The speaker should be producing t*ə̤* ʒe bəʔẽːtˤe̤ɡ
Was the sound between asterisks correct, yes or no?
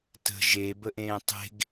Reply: yes